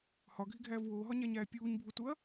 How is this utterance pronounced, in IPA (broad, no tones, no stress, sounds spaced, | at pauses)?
h ɒ ɡʱ i ɡʱ æː v w oː ɦ ɒ ɲ æ ɲ æː pʲ uː ɲ bʱ u t u ɐ̯